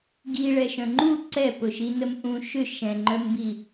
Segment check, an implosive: absent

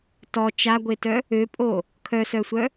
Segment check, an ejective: present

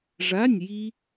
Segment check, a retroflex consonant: present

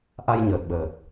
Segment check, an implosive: present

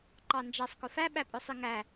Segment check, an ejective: present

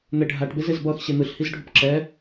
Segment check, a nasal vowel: absent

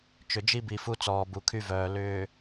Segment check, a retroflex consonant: absent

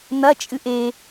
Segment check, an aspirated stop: absent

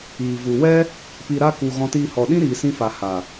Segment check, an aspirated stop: absent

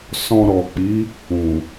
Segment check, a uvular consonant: absent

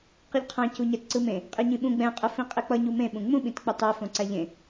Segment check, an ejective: present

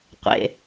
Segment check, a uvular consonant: present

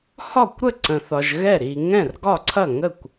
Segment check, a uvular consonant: absent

